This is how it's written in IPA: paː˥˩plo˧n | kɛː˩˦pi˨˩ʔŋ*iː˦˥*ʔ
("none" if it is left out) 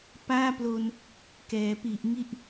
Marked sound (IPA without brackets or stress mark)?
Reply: i˦˥